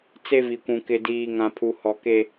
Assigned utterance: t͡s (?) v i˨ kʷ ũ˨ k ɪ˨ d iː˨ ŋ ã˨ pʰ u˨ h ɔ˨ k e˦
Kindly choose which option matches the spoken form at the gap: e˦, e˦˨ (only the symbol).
e˦